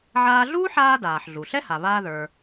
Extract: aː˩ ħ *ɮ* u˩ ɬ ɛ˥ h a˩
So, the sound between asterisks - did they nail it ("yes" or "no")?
yes